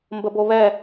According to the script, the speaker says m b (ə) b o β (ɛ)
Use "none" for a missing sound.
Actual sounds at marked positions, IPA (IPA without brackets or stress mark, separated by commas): ə, ɛ